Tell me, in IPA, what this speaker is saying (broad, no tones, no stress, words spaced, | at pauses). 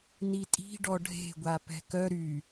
nitʼi̤ ɖɔɖʱe̤ɡʷa pɛ̤kœ ɾy